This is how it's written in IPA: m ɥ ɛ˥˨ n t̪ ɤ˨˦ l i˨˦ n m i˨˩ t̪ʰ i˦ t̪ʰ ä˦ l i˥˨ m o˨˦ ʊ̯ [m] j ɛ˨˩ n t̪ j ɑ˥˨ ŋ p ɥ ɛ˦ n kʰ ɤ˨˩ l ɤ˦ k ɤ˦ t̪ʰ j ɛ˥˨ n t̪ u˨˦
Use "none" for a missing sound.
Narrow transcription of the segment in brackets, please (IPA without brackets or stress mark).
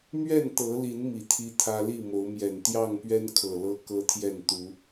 m